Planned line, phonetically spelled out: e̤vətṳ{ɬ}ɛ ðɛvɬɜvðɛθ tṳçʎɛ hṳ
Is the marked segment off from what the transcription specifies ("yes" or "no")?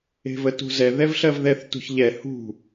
yes